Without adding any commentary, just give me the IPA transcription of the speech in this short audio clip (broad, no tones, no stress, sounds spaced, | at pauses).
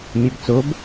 mʲ ɛ b t͡s o b